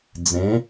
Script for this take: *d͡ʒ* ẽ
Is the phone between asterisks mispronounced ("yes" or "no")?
yes